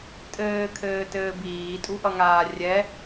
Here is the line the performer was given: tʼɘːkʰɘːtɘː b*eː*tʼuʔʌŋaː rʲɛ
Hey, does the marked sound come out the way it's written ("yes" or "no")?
no